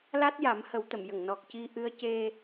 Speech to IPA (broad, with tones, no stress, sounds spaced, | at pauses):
l a˦˥ t̚ j a˨˩˦ m h ə˨˩˦ w t̪ ə˨˩˨ m j ə˨˩˨ ŋ n ɔ˨˩ k̚ c i˧ ʔ ɨ˧˥ ə̯ c e˧